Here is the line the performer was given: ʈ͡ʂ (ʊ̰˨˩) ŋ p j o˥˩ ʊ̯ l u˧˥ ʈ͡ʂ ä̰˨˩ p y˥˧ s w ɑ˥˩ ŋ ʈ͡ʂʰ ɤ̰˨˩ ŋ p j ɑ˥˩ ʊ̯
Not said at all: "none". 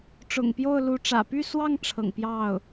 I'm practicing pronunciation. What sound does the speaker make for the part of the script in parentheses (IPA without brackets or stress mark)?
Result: ʊ̰˨˩